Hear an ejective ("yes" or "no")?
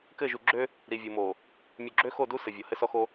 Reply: no